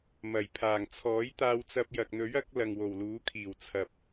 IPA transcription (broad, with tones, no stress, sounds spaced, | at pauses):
m ɐ˨˩ j pʰ aː˨˩ ŋ t͡sʰ ɔː˨˥ j t̪ aː˧ w t͡s ɐ˧ p̚ j ɐ˨ k̚ n̪ ɵ˨˥ ɥ ɐ˨˥ k̚ l ɐ˨ ŋ w o˨˩ w l uː˨˥ kʰ iː˨˩ w t͡sʰ ɐ˨ p̚